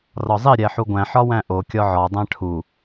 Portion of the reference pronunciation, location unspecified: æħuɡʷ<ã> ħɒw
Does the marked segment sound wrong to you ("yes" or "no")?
yes